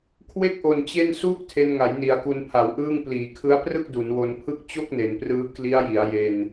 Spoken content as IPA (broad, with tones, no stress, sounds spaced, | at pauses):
kʰ w e˥˩ k̚ ʔ o˨˩ n t͡ɕ e˥˩ n s uː˥˩ k̚ tʰ e˧ n ŋ a˩˦ j n i˩˦ a̯ k u˧ n pʰ a˩˦ w ʔ ɯː˥˩ ŋ p l iː˩˦ kʰ ɯ˦˥ a̯ p r ɯ˥˩ k̚ d u˩˦ n w o˧ n pʰ ɯ˥˩ k̚ t͡ɕ o˥˩ k̚ n e˩˦ n p r ɯː˦˥ k l i˦˥ a̯ j i˩˦ a̯ j e˧ n